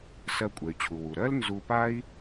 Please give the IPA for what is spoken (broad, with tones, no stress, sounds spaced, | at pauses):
s ɜ˧ kʷʼ ɛ˩ y̯ t͡ɕʰ u˩ w u˩ ɾ ɜ˥ l n z u˧ p a˥ i̯